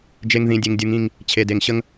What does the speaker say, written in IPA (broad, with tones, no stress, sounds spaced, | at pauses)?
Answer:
d͡ʒ e˨ ŋ ð ĩ˨ dʲ e˨ ŋ dʲ u˨ ŋ ĩ˦˨ ŋ | t͡ɕʰ e˨ d e˨ ŋ ɕ ə˦ ŋ